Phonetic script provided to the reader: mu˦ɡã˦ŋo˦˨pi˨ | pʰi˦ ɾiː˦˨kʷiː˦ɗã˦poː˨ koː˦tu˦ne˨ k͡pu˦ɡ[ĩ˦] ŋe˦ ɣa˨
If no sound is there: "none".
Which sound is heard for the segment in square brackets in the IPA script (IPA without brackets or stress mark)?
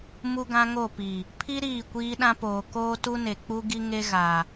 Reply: i˦